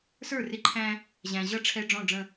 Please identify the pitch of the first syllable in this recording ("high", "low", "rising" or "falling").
falling